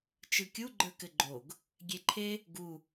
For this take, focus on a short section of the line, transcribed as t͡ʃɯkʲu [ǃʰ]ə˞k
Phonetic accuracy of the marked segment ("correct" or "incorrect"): incorrect